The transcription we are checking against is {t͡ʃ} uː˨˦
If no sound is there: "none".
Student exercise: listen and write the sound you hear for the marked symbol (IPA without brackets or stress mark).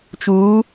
t͡ʃ